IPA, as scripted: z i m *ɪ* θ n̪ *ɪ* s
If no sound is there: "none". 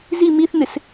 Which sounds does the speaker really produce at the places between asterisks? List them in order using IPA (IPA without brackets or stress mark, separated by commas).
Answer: i, ɪ